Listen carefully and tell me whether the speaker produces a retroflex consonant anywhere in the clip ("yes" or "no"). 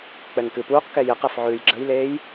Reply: no